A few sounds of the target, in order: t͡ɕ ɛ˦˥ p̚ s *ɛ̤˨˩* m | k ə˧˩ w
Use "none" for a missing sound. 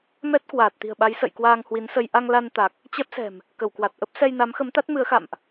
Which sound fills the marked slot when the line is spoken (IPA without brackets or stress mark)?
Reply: ɛ̤˨˩